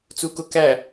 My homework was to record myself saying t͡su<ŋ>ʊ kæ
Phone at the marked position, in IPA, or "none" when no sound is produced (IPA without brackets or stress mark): k